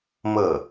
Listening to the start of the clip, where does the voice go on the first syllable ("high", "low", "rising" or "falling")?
falling